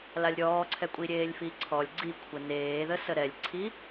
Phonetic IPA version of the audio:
l a lʲ ɾʲ ɔː ǀʰ ɛ kʷʼ i ɾʲ eː lʲ f i ǀʰ ɔ lʲ ɡ͡ǀ i kʷʰ ə n eː ð ə s ə ɾ ɛ lʲ ǀʰ i

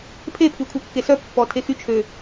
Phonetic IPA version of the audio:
pʰ e pʰ y kʷʰ ɛ kː e s œ pː ɔ tʰ e x y t͡ʃʰ ø

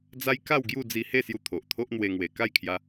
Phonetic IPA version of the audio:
d͡z a˦ j k a˥˧ w ɡ j u˥˧ d͡z i˧ h e˥˧ s j u˧ t̪ʰ o˨ ʔ t̪ʰ o˦ ʔ n̪ w e˧ ŋ w e˨˩ k a˥˧ j kʰ j a˧

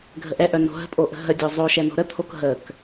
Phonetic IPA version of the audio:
ɡʱ ə ʔ ɛ ʔ œ n o̤ ɦ ə̤ pʼ o ʔ ə̤ ɦ ə dʲ o zˤ o ʃ ɛ n o̤ ɾ ə t̪ʰ o k ɦ ə k

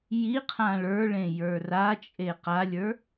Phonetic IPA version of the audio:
j i qʰ ã ɭ ə˞ ɭ ẽ j ə˞ r a t͡ʃʼ e q a lʲ ə˞

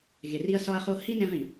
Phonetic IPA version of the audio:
ɣ e˨ r i˦ ɐ̯ s ɒ˦ ɐ̯ χ o˦ h i˦ n ẽ˦ ʁ ĩ˨

